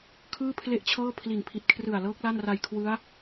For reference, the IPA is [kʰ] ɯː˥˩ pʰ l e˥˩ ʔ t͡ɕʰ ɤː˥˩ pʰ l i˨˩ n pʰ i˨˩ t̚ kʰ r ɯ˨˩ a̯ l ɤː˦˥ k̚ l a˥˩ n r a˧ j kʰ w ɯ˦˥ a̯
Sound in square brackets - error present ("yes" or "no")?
no